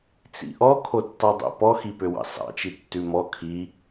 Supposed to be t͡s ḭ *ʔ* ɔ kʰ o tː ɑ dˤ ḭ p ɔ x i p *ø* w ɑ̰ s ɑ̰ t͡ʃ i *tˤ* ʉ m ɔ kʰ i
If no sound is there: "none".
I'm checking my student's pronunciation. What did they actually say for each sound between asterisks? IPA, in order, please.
ʔ, ø, tː

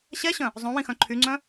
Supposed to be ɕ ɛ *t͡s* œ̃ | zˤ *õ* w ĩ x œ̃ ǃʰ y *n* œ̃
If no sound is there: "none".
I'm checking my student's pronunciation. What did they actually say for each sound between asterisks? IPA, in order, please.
ɕ, õ, ŋ͡ǀ

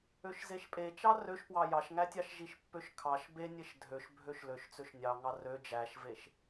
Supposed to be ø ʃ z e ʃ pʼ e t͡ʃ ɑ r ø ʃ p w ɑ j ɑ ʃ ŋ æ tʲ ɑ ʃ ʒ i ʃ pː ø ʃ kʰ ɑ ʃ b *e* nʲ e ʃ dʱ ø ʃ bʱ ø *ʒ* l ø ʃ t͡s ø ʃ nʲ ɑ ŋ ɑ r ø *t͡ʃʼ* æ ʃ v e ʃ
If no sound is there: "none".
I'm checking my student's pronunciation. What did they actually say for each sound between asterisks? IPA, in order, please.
e, ʃ, d͡ʒ

